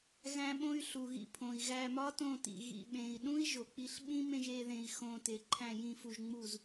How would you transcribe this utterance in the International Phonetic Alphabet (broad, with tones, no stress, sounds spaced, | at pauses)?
ɣ æ̃˦ ɓ õ˦ y̯ ɬ u˨ ɣ ḭ˧ pʰ õ˨ i̯ ɣ æ˧ m ɒ˦ t õ˦˨ t ḭ˨ ɣ ḭ˨ ɓ ẽː˨ i̯ ɗ ũ˦ i̯ ʒ o˨ k͡p i˧ ɬ ɓ ĩ˦ m ẽ˧ ʒ eː˧ ð ẽː˧ i̯ x õː˧ t e˨ ǃʰ æ̃˦˨ j ĩ˦˨ f u˧ ʒ ŋ͡m u˦˨ z